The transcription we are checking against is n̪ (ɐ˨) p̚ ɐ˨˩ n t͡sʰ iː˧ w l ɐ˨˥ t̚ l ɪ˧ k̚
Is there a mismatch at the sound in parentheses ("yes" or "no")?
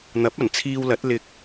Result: yes